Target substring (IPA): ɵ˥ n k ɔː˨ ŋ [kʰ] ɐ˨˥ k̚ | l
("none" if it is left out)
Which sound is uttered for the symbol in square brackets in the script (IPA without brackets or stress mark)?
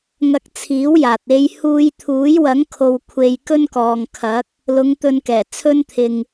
kʰ